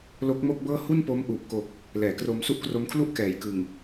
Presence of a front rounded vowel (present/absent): absent